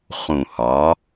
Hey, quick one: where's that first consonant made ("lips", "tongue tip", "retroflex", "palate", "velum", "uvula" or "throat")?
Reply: uvula